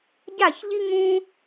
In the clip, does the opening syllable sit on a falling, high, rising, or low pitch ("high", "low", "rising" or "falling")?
falling